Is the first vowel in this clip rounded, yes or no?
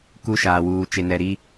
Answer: yes